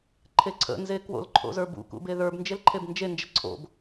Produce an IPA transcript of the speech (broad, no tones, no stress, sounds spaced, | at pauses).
ǃʰ e ǀʰ ə̰ n z e k w o̰ l ǃʰ o̰ z ə˞ b ṵ k ṵ b e ð ə˞ b n d͡ʒ e l ǃʰ e b n d͡ʒ e n d͡ʒ ə ǀʰ o̰ b